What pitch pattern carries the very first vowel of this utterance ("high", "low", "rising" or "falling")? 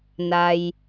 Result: low